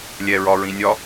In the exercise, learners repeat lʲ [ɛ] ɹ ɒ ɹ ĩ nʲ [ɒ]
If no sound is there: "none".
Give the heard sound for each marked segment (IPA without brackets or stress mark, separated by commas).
ɛ, ɒ